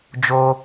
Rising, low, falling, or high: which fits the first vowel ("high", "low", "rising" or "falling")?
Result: high